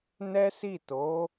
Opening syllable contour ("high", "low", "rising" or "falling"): high